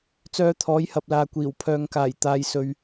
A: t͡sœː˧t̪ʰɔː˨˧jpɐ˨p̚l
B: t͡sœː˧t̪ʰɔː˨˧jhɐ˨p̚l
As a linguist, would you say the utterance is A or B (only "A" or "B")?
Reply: B